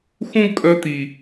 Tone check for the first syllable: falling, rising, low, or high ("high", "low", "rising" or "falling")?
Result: high